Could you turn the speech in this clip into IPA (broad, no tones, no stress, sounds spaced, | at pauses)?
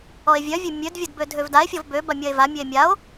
ɔ e̯ vʲ œ vʲ e mʲ ø d vʲ ɐ d b ø dʱ ø v d a e̯ fʲ ɔ v b ø b a mʲ ɐ e̯ v a mʲ ø e̯ mʲ a o̯